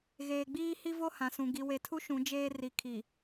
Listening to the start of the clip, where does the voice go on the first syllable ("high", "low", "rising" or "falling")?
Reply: low